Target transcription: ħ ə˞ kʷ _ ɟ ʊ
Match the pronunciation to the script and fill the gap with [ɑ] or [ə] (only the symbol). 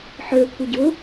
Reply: ə